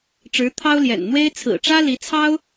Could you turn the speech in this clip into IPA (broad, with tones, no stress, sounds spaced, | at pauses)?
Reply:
ʈ͡ʂ ɻ̩˧˥ t̪ʰ ɑ˥ ʊ̯ l j ɛ̰˨˩ n n̪ w e˥ ɪ̯ t͡sʰ ɹ̩˨˩ ʈ͡ʂ ä˥ l i˧˥ t͡sʰ ɑ˥ ʊ̯